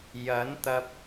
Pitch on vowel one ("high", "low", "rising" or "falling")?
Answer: rising